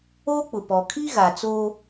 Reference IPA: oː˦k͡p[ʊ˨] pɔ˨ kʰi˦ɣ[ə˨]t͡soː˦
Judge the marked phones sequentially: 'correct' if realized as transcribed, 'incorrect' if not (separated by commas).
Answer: correct, incorrect